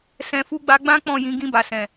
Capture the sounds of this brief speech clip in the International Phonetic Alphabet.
s ɛ̃˨ f u˧ ɡ͡b a˧ ɡ͡b ã˦ k͡p ɔ̃˦˨ j ĩ˧ ɡ ĩ˧ b a˨ s ɛ̃˨

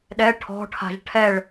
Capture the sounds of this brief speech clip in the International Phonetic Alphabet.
ɗ ɛ ʈʰ ɔ̤ ʈʰ a̤ ʒ ʈʰ ɛ ɭ

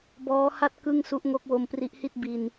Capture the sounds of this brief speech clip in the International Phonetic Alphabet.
b ɔː˦˥ h a˥˩ t̚ k ɯ˥˩ ŋ s u˦˥ ʔ ŋ o˦˥ k̚ w o˧ m p r i˦˥ ʔ h i˥˩ t̚ b i˧ n

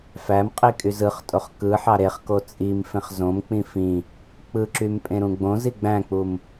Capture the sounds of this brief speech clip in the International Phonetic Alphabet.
f æ m qʼ i kʼ y z ɯ χ tʼ o χ k ɯ ħ ɑ ɾ e χ k o t͡sʼ i m f ẽ χ z õ m k͡p ĩ f ĩ | k͡p ɯ ǁ y m pʼ ẽ ɾ ũ ɡ͡b õ z i ɡ͡b æ̃ k͡p u m

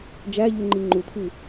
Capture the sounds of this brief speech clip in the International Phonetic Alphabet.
d͡ʒ æ ʎ u ŋ͡ǃ i ŋ͡ǃ u t̪ʰ i

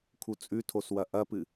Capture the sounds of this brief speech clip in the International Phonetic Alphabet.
kʰ u t͡sʼ ʉ tʰ o s w ɐ ʔ ɐ p ɨ

